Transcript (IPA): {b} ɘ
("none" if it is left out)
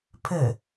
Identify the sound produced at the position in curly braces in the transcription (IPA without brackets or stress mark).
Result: pʰ